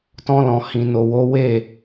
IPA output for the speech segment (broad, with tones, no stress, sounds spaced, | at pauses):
t ɔ̃˧ l ɔ̃˨ h ĩ˨ n o˧ w o˦ w e˦˨